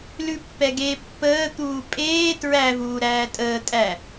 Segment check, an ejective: present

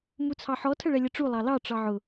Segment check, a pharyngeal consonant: present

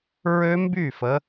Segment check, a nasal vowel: absent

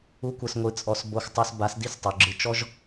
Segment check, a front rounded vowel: absent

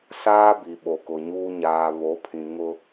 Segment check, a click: absent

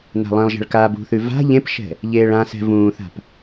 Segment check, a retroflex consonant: present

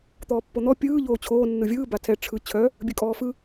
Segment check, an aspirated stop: present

